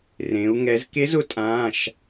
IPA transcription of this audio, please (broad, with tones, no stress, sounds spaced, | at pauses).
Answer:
r ẽ˩˧ u̯ ŋ ɛ˩˧ z k e˧˥ z ʊ˧˥ tʼ ãː˩˧˩ ʃ